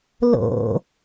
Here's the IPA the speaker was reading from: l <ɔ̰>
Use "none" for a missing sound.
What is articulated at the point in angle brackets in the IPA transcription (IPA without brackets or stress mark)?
o̰